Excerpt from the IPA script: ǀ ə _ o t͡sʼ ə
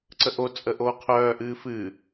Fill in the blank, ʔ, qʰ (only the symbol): ʔ